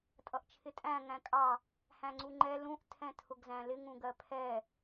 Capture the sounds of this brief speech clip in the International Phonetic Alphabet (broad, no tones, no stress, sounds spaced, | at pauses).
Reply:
tʼ ʌ ʔ t͡ʃʰ ɪ tʼ æ̃ ŋ æ̃ kʼ ɑ | h æ̃ ŋ͡ǀ u ŋ͡ǃ ɛ l ũ ʔ tʰ ɛ̃ tʰ ʊ ɡ z æ̃ l ɪ ŋ ũ ɡ ɜ pʰ ɛ